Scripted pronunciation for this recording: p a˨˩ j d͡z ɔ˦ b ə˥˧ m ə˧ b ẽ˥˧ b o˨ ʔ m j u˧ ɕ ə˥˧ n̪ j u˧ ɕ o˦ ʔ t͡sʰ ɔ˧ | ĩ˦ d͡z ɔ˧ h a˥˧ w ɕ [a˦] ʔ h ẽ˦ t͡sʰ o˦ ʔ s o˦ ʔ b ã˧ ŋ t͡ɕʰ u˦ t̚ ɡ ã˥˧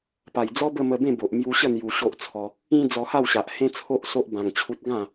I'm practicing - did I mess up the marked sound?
yes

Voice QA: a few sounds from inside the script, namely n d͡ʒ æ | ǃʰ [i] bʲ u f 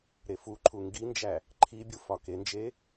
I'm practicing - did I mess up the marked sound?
no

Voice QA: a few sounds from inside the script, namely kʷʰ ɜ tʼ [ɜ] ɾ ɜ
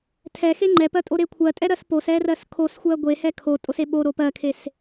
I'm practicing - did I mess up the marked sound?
yes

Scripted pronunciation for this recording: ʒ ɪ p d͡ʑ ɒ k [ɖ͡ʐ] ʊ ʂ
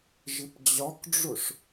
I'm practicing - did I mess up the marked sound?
no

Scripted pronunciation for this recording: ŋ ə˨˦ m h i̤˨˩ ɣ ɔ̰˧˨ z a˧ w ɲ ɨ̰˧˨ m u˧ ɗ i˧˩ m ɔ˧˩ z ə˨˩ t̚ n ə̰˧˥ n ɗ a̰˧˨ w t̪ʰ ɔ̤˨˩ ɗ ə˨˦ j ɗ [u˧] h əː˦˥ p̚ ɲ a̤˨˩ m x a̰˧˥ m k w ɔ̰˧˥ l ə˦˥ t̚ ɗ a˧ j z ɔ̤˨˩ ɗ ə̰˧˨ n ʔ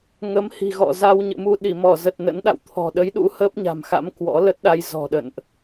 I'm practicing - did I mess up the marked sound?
yes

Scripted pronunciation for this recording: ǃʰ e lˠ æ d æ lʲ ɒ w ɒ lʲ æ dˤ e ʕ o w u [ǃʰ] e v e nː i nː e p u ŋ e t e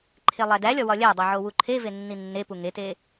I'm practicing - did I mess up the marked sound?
no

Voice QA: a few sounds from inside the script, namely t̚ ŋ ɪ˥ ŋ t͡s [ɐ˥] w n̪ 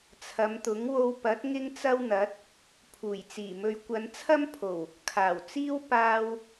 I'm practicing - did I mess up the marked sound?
no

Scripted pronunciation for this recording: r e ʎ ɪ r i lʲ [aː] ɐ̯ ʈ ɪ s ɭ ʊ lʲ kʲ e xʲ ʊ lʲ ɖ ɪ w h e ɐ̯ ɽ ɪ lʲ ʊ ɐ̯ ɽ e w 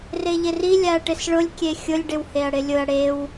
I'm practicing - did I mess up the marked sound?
yes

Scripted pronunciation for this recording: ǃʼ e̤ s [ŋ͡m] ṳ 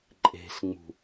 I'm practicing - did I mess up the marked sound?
no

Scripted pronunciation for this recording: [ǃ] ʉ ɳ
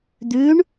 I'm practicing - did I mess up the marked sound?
yes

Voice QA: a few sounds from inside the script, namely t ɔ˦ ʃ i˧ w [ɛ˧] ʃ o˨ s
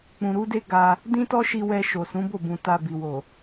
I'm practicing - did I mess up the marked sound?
no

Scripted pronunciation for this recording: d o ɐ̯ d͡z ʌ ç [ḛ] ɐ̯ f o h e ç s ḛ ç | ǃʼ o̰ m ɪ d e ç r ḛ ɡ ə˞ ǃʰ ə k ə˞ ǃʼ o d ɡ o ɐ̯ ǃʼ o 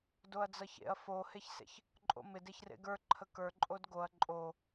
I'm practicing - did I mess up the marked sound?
no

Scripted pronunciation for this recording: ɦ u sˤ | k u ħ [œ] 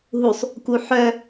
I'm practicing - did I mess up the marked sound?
no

